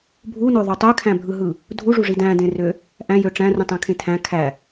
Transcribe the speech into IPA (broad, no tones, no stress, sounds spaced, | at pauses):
bʱ u n o ðˤ o tˤ ø kʰ æ̃ bʱ ɯ ɦ ɯ | dʱ u ʐ u ʐ i d æ̃ d ẽ r ø | ʔ æ̃ j ø ʈ͡ʂ æ̃ r ũ tˤ æ̃ kʰ ẽ tʰ æ̃ kʰ æ